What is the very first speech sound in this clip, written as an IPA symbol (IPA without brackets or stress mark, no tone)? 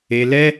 e